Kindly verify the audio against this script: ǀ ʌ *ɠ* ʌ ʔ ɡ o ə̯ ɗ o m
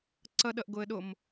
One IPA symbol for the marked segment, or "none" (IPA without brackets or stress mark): ɗ